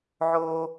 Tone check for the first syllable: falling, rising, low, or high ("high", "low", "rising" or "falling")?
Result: low